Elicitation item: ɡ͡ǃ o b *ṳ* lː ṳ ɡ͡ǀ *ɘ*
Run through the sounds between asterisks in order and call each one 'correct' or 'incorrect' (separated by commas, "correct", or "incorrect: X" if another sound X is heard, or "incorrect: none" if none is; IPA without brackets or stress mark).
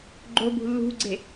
correct, incorrect: e